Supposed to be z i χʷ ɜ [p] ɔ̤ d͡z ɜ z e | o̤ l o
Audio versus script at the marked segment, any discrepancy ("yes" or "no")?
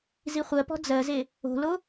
no